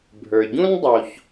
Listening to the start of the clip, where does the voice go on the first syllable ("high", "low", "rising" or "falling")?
low